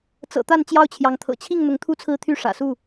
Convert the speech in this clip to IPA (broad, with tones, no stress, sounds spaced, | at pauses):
t͡s ɤ̰˨˩ t̪ a˥˨ n t͡ɕ j ɑ˥˨ ʊ̯ t͡ɕʰ j ɑ˨˦ ŋ t̪ʰ ɤ̰˨˩ t͡ɕʰ i˥˨ ŋ n̪ ʊ˨˦ ŋ t̪ʰ u˦ t͡sʰ ɹ̩˥˨ t̪ʰ y˥˨ ʂ ä̰˨˩ s u˥˨